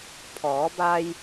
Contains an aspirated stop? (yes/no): yes